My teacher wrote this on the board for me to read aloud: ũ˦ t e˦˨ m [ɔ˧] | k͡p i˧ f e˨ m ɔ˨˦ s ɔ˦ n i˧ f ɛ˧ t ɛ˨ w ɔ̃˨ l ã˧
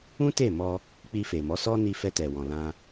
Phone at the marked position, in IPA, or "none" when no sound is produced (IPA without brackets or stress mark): ɔ˧